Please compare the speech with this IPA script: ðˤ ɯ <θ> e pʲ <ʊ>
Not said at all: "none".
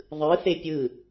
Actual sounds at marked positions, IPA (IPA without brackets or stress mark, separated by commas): θ, ɯ